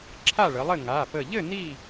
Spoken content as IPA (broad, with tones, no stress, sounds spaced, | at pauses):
ǁʰ a˥˨ ɭ ə˩˧ lˠ ɘ˥˨ ŋ a˩˧˩ p ə˧˩ ʎ ɘ˥˨ n i˥˨